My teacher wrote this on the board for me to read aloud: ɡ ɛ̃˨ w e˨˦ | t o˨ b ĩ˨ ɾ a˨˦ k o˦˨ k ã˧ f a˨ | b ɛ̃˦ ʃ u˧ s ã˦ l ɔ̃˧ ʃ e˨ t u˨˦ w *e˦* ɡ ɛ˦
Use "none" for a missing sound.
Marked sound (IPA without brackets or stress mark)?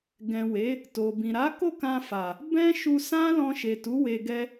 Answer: e˧